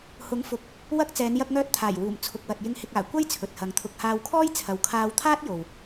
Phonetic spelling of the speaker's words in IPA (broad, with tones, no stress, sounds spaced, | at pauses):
h ʊ˨˥ ŋ f ʊ˨˥ k̚ | w ɐ˧ k̚ t͡s ɛː˨˧ n j ɐ˧ k̚ ŋ œː˧ t̚ t̪ʰ aː˨˩ j w uː˨˩ m t͡sʰ ʊ˨ k̚ w ɐ˨ t̚ j ɪ˨ ŋ h ɪ˨ k̚ aː˨˩ kʷ ɐ˥ j t͡sʰ ɵ˨ t̚ h ɐ˨˧ ŋ t̪ʰ ʊ˨ k̚ h aː˧ w kʰ ɔː˥ j t͡sʰ ɐ˨ w kʰ aː˧ w t̪ʰ aː˥ t̚ j o˨ w